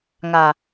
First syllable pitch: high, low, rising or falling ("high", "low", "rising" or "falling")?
low